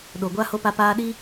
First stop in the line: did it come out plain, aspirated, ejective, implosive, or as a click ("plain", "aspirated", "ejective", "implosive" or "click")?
implosive